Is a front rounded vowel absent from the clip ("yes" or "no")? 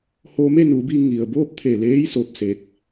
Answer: yes